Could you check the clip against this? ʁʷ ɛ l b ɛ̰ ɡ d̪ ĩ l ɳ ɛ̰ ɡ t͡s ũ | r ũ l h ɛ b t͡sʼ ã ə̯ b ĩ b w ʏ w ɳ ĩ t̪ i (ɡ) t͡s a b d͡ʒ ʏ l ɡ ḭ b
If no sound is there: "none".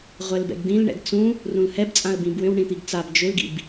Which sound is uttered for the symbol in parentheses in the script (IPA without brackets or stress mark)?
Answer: ɡ